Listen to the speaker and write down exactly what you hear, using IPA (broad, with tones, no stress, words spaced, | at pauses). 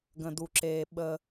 ɡə̃˨du˨ǁeː˨ ɓə˦